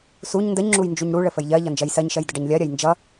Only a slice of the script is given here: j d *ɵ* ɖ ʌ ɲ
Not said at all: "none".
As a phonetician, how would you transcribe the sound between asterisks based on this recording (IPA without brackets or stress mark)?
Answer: ə